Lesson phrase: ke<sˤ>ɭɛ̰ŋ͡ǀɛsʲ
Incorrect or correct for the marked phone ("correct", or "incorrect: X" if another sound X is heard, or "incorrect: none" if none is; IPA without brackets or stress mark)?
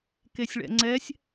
incorrect: sʲ